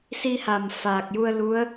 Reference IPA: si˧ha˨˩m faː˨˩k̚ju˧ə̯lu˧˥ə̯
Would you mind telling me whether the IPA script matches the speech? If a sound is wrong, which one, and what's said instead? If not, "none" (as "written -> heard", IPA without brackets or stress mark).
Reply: none